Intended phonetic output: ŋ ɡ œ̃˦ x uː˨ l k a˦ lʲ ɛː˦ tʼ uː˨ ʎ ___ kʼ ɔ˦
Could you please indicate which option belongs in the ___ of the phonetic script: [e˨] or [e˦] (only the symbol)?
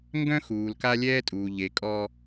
e˨